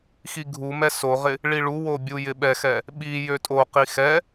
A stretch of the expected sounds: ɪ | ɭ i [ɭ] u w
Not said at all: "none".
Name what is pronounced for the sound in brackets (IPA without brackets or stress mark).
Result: ɭ